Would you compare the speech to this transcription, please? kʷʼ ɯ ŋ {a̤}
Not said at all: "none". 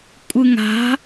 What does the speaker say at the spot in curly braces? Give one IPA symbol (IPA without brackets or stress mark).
a̤